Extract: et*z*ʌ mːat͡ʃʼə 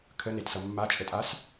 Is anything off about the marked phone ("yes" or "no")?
yes